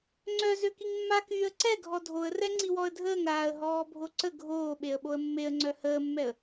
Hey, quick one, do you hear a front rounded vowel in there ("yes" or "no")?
yes